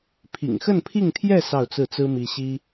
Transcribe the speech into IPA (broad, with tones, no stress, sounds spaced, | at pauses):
pʰ ḭ˨˩ ŋ x ə˥˧ n pʰ i˥˧ ŋ t̪ʰ j ɛ˥˧ s ɑ˥˧ ʊ̯ t͡s ɹ̩˥˩ t͡s ɹ̩˥ m i˥ ɕ i˥